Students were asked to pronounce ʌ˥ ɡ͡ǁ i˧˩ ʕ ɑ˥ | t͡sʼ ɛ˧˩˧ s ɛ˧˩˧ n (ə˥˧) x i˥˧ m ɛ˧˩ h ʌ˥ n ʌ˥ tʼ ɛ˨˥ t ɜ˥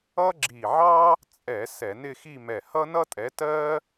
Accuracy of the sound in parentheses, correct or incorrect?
incorrect